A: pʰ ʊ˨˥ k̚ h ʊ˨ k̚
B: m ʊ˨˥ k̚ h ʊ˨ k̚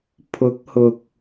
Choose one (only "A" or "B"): A